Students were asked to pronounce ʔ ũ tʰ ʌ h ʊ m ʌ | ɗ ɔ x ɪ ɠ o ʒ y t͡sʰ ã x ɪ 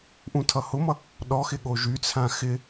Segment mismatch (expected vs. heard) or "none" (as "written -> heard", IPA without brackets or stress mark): none